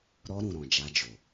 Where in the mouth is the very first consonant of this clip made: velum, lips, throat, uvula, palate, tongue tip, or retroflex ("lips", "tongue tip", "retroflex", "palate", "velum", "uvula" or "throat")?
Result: tongue tip